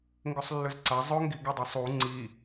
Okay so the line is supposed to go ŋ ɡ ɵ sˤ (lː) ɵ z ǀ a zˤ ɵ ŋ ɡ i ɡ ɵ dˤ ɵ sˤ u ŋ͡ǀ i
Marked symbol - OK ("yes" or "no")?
yes